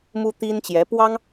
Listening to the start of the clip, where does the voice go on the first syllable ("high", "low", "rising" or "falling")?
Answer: high